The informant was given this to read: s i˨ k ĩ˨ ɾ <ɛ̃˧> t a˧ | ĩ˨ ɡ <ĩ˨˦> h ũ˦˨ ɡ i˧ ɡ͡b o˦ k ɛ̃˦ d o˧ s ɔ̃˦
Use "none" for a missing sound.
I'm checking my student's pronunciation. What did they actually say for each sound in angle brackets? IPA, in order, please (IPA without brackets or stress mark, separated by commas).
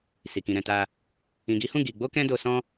ɛ̃˨, i˨˦